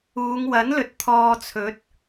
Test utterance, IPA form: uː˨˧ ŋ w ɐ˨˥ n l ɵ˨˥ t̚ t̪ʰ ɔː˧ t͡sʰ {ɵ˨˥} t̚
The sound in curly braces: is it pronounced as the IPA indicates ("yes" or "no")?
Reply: yes